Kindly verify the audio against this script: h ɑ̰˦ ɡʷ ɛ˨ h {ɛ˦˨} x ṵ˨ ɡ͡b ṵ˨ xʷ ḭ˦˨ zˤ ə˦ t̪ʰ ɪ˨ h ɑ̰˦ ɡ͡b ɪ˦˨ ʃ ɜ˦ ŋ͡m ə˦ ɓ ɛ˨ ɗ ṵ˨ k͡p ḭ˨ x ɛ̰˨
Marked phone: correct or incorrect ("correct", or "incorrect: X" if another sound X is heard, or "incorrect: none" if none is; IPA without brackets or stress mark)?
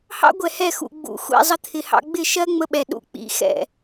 correct